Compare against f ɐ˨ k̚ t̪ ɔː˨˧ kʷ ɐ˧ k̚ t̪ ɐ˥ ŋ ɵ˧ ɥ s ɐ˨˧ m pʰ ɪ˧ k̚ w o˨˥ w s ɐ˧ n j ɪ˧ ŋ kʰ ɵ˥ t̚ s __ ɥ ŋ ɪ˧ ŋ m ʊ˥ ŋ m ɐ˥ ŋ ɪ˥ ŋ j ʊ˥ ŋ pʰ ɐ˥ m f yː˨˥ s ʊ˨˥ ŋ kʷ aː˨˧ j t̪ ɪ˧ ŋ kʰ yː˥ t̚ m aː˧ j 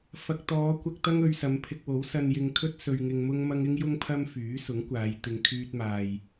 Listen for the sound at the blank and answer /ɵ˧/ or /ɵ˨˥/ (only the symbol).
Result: ɵ˧